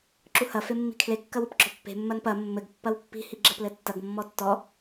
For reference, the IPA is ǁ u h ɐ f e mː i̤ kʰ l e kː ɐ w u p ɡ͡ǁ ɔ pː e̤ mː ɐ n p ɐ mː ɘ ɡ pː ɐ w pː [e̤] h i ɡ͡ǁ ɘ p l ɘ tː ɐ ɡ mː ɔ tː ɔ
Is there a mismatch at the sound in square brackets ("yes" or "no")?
yes